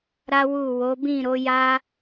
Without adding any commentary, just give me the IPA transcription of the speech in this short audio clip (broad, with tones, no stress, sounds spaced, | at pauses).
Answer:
ɾ a˦ w u˦˨ w o˨˦ b ĩ˦˨ ɾ o˨˦ j a˦